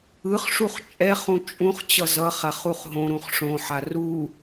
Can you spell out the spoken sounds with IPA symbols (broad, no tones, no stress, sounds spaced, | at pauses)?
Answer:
ɯ χ ʂ u χ t͡ʃʼ ɛ χ ũ t͡ʃʼ ũ χ t͡ɕ ʌ z ʌ χ a χ u χ ɦ õ ɾ ũ χ ʂ õ ħ a r u